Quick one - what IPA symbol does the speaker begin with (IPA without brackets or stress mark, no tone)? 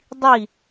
dˤ